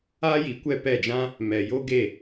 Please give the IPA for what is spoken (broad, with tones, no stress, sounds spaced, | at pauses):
aː˦ j i˨ kʷ ɛ˦˨ p ɛ˦˨ d͡ʒ ã˦ | m ɛ˨ j o˦ ɡ e˦˨